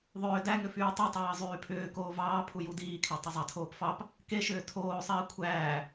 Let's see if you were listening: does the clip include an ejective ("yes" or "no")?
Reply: no